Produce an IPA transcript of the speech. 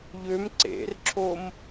ʎ ø m ǀ ḛ r ǁʰ o m

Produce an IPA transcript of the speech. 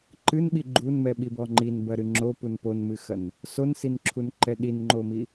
ǃ ɨ n ɓ i ɡ͡ǃ u n m ɛ ɓ i b ɔ ŋ͡ǃ i n b ɐ ɾ ɨ ŋ͡ǁ o p u n p o n m ɨ x ɐ n | s o n s i n ǁʰ u n ǃ ɛ ɗ i n ŋ͡ǃ o m i

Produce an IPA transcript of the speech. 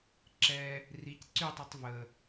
ǁ ɛ | r i c ǀ y tˤ ɛ tˤ v ə

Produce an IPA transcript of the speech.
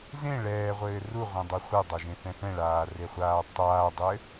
z ẽ ɭ ɛː ʁʷ ɘː r u ʁʷ ẽ dˤ ɘ χʷ e dˤ a ʒ ẽ θ ɛ̃ θ ɛ̃ ɭ aː r e χʷ aː tˤ aː dˤ ɘ

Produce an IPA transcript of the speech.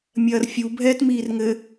mʲ ɐː r fʲ u bʱ ɛː t m iː r ŋ ɘ

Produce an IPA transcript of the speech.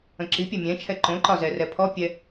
ə̃ ǁ i pʲ ɛ mʲ ɛ̃ t͡ʃʰ ɛ ǃ õ ǃ ɒ z ɛ r ɛ pʰ ɔ pʲ ɛ

